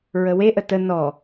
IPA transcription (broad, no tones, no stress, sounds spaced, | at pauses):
ɹ ə w e ʔ ə t ə n ɔ